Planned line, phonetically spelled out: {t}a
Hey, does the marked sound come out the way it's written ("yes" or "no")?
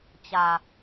no